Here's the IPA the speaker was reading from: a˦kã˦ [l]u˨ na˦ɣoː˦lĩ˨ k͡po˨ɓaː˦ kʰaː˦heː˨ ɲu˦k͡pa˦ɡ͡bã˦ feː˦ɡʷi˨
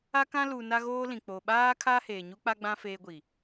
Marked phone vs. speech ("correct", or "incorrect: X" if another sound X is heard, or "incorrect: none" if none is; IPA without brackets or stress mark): correct